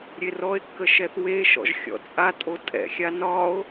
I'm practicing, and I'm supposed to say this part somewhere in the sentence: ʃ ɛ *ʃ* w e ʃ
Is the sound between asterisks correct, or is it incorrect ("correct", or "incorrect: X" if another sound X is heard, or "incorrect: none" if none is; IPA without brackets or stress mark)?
incorrect: θ